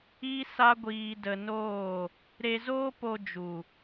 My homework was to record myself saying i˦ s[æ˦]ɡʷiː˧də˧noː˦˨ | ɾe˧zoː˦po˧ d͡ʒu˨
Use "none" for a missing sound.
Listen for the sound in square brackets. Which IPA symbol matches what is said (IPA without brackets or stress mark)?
a˦